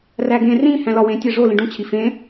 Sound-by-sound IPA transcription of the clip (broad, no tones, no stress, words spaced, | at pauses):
ræɡẽ rĩ hæ̃lɒwẽ tʲæʐo lĩɖũ t͡ɕʰifẽ